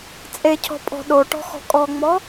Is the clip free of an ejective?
no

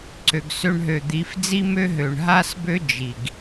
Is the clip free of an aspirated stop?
yes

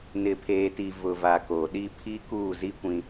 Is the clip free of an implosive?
no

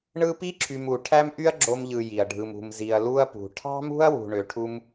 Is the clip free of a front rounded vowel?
no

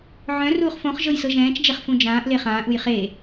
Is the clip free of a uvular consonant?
no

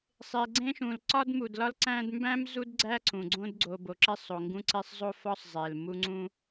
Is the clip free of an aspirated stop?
yes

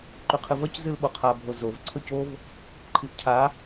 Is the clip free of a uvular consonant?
no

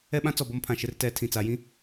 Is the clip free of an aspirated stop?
no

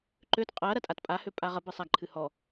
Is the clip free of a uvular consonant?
no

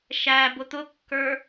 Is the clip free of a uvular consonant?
yes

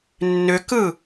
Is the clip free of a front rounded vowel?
no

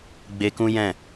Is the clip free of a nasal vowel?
no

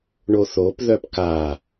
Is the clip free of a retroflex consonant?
no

